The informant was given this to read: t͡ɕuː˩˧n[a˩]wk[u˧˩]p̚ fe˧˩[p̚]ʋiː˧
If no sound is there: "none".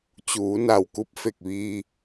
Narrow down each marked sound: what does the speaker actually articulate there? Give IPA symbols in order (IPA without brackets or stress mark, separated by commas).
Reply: a˧˩, u˧˥, k̚